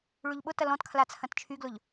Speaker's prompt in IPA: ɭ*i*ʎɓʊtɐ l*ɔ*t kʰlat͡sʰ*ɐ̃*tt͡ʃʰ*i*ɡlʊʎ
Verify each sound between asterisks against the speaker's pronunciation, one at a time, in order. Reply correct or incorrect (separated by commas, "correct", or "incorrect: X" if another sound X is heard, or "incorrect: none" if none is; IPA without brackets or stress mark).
incorrect: y, incorrect: ɔ̃, correct, incorrect: y